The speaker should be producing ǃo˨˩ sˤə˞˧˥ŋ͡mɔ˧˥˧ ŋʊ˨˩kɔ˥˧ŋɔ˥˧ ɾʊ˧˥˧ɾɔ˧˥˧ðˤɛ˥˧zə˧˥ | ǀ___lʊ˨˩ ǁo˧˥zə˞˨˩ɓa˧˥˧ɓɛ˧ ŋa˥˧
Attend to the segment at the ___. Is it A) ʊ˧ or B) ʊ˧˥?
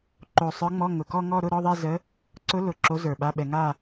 B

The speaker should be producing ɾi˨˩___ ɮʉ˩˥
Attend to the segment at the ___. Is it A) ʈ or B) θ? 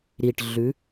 A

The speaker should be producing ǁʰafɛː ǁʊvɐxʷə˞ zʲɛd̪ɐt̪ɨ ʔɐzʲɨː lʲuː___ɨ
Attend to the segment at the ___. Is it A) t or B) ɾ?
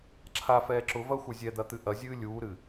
B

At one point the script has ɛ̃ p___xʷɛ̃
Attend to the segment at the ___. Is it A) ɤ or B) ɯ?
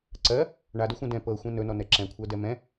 A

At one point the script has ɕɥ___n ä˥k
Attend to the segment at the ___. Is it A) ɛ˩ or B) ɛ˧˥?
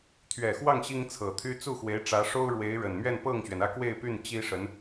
A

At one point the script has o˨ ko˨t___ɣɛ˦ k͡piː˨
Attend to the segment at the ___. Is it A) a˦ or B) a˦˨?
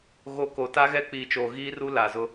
A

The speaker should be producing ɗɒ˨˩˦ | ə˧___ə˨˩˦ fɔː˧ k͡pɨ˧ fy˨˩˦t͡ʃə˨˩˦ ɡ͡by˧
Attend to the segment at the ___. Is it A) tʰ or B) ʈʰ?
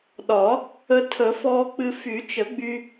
A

